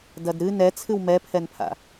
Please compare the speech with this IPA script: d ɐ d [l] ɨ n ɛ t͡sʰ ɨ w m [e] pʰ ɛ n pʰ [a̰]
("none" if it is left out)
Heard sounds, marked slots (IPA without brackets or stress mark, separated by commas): ɾ, ɛ, a̰